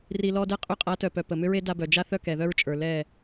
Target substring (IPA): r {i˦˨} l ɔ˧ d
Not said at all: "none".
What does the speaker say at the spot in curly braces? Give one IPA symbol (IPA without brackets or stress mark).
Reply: i˨